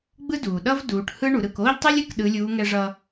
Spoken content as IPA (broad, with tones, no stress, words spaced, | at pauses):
ɡ͡bɯ˥duː˩ ɗʌ˥v duː˩˧ʈhɯ˥ ɳu˩˧ɾɯ˩˧k oː˥ʎtˤi˥lʲɯ˧˥k ɗɯ˧˥lʲuː˧˥ ŋɛ˧ʐʌ˧